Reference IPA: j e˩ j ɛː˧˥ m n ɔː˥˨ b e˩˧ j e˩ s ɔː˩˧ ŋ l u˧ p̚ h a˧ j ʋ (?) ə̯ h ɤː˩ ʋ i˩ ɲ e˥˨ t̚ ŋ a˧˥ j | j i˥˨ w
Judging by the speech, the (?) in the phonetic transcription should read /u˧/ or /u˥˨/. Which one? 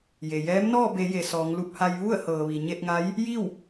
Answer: u˥˨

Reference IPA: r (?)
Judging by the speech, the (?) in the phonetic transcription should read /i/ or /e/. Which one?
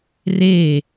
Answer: e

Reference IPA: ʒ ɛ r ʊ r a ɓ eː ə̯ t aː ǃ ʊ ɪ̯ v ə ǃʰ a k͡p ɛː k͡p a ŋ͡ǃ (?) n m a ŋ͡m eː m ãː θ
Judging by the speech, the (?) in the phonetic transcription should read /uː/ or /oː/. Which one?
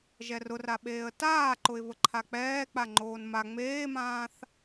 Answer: oː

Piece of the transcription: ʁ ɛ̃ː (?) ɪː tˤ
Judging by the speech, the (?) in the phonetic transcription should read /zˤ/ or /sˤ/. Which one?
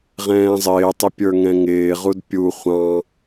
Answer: zˤ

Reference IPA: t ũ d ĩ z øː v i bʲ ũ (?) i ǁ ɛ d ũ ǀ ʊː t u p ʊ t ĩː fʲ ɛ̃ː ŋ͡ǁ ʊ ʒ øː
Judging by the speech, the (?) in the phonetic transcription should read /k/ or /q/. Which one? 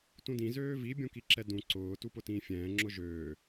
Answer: k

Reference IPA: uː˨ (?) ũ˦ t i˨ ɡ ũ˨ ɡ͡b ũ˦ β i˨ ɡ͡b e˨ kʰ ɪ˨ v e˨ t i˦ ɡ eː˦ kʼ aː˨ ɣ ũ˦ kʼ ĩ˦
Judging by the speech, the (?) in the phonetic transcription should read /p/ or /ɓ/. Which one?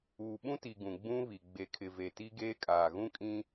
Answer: ɓ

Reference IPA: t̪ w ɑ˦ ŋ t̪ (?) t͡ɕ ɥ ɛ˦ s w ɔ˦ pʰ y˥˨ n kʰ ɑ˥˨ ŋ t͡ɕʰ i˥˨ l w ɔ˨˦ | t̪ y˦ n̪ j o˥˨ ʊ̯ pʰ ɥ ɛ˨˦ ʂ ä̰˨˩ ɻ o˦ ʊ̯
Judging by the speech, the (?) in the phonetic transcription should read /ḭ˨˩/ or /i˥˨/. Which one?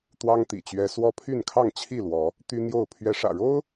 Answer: ḭ˨˩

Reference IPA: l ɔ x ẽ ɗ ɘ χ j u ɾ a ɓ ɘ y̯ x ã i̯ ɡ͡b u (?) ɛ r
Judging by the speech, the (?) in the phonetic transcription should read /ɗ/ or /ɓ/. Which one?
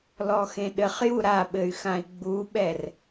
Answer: ɓ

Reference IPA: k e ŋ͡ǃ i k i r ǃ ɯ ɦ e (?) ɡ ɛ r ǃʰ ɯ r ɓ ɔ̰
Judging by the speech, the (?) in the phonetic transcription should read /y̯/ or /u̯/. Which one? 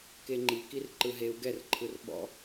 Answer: u̯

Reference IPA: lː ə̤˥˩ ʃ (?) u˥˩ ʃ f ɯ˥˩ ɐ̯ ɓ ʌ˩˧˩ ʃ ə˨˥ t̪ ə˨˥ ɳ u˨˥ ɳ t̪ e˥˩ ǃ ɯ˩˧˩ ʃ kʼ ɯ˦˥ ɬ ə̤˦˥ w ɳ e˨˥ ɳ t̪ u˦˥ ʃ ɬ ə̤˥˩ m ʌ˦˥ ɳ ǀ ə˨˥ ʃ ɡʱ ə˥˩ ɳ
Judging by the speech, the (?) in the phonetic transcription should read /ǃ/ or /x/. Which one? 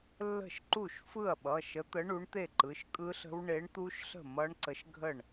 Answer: ǃ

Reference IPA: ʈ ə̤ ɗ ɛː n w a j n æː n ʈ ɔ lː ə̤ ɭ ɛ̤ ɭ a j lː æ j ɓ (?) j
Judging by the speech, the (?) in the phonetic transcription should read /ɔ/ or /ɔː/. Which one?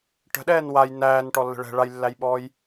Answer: ɔː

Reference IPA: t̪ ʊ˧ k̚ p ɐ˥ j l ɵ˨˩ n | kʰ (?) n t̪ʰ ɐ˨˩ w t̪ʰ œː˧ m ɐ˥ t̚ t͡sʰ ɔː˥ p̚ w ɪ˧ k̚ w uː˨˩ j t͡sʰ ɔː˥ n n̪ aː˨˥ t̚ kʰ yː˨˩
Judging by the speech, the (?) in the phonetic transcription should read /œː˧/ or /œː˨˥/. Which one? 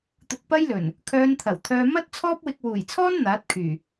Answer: œː˧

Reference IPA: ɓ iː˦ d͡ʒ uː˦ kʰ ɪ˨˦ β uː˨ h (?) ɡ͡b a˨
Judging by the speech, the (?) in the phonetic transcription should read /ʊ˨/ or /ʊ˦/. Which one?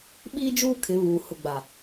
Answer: ʊ˨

